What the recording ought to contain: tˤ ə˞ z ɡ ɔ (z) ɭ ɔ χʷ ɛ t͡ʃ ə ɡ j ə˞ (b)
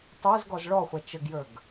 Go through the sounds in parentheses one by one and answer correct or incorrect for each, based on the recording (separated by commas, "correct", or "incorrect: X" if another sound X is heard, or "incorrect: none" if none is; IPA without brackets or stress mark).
correct, incorrect: ɡ